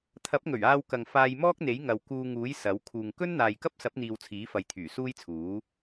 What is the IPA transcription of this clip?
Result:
t̪ʰɐ˨˥p̚ŋɵ˨˩ɥ aː˧wkɐ˨ŋ faː˧jmɔː˥k̚n̪e˨˥jŋɐ˨w kuː˧ŋuː˨˥j sɐ˨˥w kʰuː˨ŋ kɵ˥nn̪aː˨jkɐ˥p̚sɐ˨˥p̚ n̪iː˧wt͡sʰiː˨˥fɐ˨˧j t̪ʰyː˨˩suː˥jt͡sʰuː˨˥

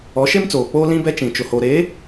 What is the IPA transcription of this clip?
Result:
ɔ˨˦ʃe˦mt͡soː˨k͡poː˦ lĩ˦bɛ˦ t͡ʃĩ˨t͡ʃʊ˨ho˨ ɾe˨˦

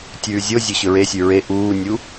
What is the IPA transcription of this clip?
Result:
tʲʉːzʲozʲɵ ɕɵɹesʲʉ ɹe ʔuːnʲu

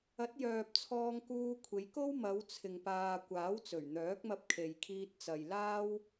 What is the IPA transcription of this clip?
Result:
ɐ˨˥t̚jœː˨p̚ t͡sʰɔː˧ŋ kuː˧kʷʰe˨˧jko˥w mɐ˨˧w t͡sʰɪ˨ŋpaː˨ kʷaː˨˥wt͡sɵ˨˩ɥn̪œː˨˥k̚mɐ˧p̚ kʰe˨jkʰiː˧t̚t͡sɐ˨j laː˥w

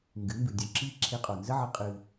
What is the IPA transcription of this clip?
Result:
ŋɡɨ˨˦mbɨ˨ dʲo˧ǁi˦ ǁʰe˧qʼo˨nzə˦ʕə˧ qʼɨ˧

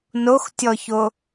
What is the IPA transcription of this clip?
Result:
noxtʲɔço

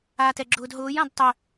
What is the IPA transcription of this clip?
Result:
aːtɛɡ͡ǁʊːdɦʊːj ãdtˤœ

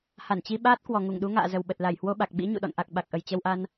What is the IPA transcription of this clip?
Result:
ha˧˩nt͡ɕi˧ɓaː˦˥t̚ kwɔ˨˩ŋu˧˩ŋɗu˨˦ŋa̰ː˧˨ zə˨˩wɓə˨˩t̚ la˧˩jhwo˧ɓa˨˩k̚ ɓḭ˧˥ ɲṵ˧˨ɗɔ̰˧˨n ʔa˨˩k̚ ɓa˨˩k̚ʔə˨˩jt͡ɕə˧wʔa˧n

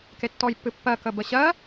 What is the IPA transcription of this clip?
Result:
ketːɔjpːɨpːɜ kəbəɕɜ

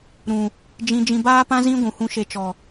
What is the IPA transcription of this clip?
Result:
ɾũ˨ | d͡ʒĩ˧ d͡ʒĩ˧baː˦pã˦ zĩ˦ ɡʷũ˨hũ˧ʃe˧t͡ʃɔ˨

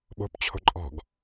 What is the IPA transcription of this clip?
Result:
ɓo̤pt͡ɕʰo̤ ǃʼɔ̤ɡ

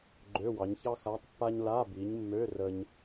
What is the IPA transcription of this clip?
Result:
ɡ͡ǃø˧˥˧wɑ˨˦ɲ çɑ˥xa˧˥˧tˤpːa˥ɲ la˧˥˧bi˨˦ɲmːø˧˥˧ rə˥ɲ

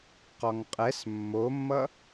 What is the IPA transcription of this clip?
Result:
qɔŋqʼɛs mːomːʌ

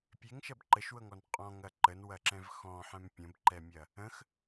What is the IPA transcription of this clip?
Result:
pʲeŋʃɐb ǃəʃwɤŋɔn qʼɔ̃ŋɐ ǃənwɐǁɛ̃v xɔ̃ħɛ̃m pʲə̃bǃɛmʲɐ | ə̃x

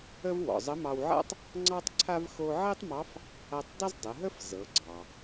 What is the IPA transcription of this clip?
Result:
ə˥v wɔ̰˩zˤə˧˥mɑ˧wʕa̰˥tˤ | ŋ͡ǀɑ˥tˤǀʰa˥v xo˥ ʕɛ˥tˤmɑ˧˥f | a˧tˤdˤə˥zdˤə˩˧ɦə˥f zɤ˩˧ɡ͡ǀɑ˩

